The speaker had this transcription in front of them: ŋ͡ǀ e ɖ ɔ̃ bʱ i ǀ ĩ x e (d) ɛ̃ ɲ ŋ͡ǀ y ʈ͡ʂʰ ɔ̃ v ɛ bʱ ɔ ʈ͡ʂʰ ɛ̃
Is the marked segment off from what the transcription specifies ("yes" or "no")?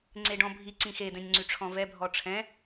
no